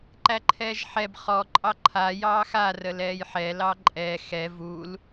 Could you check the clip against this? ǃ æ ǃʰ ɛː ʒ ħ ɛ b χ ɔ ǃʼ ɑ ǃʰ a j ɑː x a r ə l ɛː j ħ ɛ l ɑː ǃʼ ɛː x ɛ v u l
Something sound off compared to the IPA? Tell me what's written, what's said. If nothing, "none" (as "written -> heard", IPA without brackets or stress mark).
none